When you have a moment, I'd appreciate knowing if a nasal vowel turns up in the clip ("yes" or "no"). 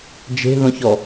yes